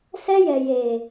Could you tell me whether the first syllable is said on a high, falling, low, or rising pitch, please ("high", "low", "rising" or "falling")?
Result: high